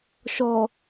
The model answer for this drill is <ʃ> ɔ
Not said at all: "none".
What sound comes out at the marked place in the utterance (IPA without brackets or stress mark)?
ʃ